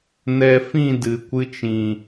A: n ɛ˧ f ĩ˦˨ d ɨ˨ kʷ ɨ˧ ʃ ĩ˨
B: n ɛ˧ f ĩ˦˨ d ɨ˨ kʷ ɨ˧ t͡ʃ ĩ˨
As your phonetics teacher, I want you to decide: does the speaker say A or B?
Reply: B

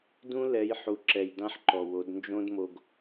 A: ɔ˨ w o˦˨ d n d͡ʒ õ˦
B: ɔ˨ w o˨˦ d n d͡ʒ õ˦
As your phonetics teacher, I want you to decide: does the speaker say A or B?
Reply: B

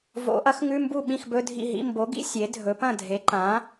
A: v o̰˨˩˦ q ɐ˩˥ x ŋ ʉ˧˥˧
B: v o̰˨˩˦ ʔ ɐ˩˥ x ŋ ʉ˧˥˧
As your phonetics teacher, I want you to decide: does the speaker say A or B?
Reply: B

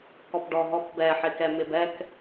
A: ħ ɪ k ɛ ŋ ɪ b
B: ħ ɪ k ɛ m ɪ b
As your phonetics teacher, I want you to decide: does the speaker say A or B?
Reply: B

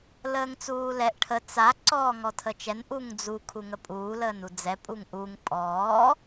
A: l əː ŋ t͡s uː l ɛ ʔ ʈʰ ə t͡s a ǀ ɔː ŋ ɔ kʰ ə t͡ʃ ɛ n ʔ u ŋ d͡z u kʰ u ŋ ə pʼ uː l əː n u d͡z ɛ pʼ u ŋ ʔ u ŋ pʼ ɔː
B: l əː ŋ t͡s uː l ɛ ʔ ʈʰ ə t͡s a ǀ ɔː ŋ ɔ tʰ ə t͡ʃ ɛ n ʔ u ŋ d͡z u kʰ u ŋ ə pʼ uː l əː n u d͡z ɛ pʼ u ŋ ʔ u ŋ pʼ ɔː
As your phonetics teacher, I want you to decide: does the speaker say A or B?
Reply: B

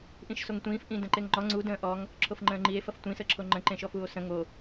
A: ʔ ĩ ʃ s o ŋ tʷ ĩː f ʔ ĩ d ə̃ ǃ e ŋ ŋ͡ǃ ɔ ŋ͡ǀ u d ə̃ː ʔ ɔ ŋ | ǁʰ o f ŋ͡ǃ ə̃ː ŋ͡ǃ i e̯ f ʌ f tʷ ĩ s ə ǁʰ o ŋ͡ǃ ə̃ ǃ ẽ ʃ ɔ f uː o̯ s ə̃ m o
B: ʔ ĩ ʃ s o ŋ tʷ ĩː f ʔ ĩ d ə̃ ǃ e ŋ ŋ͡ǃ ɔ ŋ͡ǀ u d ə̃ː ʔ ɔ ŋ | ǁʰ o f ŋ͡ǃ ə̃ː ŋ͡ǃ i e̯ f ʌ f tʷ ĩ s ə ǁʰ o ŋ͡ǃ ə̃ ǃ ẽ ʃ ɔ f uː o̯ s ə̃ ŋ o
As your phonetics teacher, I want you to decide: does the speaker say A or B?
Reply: B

